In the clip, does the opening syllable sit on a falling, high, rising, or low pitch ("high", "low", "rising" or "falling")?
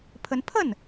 rising